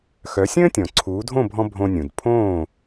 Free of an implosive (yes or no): yes